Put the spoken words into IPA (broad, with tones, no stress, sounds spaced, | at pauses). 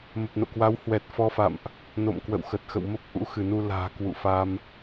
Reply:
m ə˨˩ p̚ n o̰˧˨ k w a˨˦ w h w ɛ˨˩ t̚ f ɔ˧ f a̰˧˨ m ʔ | n o̰˧˨ m k w ə̰˧˨ w x ə˨˩ t̚ x ə̰˧˨ w m ə˦˥ p̚ ʔ ṵ˧˥ x ɨ˧˩ n u˧ l a̤ː˨˩ k w ṵ˧˨ f a˧ m